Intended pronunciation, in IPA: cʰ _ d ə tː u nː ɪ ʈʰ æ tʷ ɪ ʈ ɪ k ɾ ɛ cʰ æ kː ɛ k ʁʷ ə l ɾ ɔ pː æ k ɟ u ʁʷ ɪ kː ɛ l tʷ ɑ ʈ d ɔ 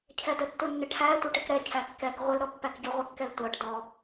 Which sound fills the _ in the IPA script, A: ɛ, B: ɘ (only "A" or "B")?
A